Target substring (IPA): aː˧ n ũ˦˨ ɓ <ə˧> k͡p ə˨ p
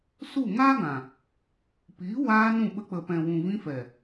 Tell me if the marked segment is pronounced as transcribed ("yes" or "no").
yes